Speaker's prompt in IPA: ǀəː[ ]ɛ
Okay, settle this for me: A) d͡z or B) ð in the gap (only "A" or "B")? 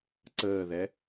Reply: B